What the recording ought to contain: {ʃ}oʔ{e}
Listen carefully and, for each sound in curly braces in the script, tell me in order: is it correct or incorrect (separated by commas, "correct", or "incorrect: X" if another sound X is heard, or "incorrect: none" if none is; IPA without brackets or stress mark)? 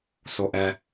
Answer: incorrect: s, incorrect: ɛ